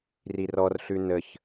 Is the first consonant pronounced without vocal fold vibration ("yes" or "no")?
no